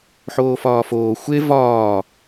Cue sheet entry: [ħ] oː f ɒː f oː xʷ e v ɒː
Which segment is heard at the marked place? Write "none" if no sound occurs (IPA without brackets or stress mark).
ħ